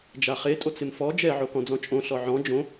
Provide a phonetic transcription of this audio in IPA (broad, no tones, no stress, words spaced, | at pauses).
d͡ʒaχe tʼot͡sɪmfɔ d͡ʒɛ ʕokɔ̃d͡zɔ̃t͡ʃʼõ ɬɔʕɔ̃ d͡ʒõ